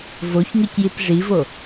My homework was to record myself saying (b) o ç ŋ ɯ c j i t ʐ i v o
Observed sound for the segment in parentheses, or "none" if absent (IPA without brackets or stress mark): v